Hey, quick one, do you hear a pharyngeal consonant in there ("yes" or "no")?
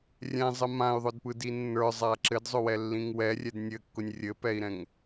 no